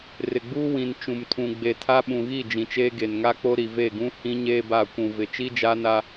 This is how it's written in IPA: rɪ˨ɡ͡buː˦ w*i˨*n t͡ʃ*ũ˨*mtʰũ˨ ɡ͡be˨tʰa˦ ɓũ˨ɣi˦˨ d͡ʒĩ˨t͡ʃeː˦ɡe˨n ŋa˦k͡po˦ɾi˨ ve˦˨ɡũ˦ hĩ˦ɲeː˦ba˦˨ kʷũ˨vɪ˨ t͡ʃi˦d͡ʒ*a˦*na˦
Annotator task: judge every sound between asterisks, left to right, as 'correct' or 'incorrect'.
incorrect, correct, correct

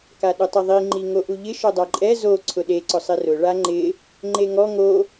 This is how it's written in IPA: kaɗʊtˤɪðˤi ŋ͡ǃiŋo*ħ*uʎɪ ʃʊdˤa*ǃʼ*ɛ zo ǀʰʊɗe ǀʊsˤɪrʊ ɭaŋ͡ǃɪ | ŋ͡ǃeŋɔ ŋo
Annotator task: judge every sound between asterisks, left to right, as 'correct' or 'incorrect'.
incorrect, correct

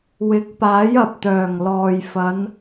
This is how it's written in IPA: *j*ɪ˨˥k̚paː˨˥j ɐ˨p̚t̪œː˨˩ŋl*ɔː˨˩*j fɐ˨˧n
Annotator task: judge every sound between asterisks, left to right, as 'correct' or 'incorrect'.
incorrect, incorrect

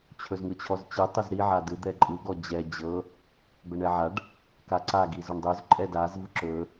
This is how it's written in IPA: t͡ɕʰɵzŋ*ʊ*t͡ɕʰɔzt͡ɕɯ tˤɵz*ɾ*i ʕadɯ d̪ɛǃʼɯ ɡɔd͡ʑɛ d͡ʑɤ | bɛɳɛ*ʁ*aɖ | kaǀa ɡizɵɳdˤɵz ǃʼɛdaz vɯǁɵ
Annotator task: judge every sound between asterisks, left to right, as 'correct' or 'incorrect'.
incorrect, correct, incorrect

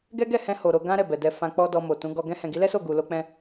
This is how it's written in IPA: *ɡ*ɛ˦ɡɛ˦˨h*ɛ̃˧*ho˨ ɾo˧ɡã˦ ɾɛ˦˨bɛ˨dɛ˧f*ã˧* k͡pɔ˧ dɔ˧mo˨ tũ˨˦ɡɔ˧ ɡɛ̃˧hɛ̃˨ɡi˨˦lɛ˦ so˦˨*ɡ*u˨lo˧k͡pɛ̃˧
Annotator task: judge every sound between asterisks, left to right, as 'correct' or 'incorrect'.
correct, correct, correct, correct

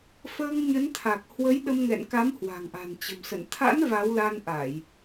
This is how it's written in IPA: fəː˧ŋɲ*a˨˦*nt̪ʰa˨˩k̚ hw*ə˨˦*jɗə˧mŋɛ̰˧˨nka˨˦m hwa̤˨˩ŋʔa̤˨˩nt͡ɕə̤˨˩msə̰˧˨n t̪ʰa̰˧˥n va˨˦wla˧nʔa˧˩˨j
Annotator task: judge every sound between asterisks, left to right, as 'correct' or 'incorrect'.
incorrect, correct

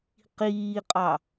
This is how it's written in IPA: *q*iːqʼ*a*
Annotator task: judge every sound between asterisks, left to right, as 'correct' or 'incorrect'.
correct, incorrect

